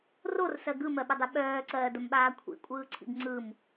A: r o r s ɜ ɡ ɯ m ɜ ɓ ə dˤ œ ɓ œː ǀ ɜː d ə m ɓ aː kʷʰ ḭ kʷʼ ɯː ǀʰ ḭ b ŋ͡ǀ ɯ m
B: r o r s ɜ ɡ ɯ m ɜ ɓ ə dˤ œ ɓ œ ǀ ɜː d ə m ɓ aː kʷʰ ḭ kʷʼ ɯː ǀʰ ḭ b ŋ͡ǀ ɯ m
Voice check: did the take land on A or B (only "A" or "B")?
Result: A